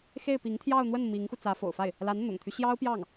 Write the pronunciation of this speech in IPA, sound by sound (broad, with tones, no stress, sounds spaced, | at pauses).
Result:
x e˥˩ ɪ̯ p i˧˥ ŋ t̪ʰ j ɑ˥˧ ʊ̯ n̪ w ə˥˩ n m i˧˥ ŋ x u˧ t͡s ä˧˥ f o̰˨˩ ʊ̯ f a˥˩ ɪ̯ | l a˧˥ n n̪ ʊ̰˨˩ ŋ t̪ʰ y˦ ɕ j ɑ˥ ʊ̯ p j ɑ˥˩ ŋ